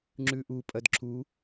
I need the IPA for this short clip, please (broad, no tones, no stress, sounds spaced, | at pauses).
ŋ͡ǁ ʉ ʔ u pʼ ɐ d ǁ u